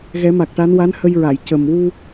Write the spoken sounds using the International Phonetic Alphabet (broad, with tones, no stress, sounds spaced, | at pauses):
ɣ ɛ˨˩˦ m a˨˩ k̚ ʈ a˧˥ n w a˧˥ n h ə˧ j ɹ a˨˩˨ j c ə˨˩ m w u˧